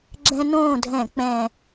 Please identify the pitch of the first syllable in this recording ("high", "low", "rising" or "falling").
high